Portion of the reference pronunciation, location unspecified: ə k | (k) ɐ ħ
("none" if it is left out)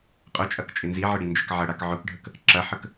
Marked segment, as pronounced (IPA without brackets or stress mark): ǁ